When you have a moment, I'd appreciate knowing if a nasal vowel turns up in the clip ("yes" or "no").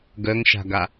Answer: no